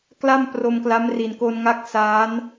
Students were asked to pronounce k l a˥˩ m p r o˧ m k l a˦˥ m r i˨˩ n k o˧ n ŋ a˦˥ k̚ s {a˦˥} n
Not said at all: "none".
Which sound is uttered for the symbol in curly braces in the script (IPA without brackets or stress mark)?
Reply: aː˦˥